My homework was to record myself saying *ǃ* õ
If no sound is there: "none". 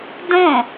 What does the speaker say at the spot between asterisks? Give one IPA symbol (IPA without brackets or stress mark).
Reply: d